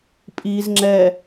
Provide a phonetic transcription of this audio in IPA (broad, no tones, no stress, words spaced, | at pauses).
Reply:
pʼiz ŋ͡ǁɛ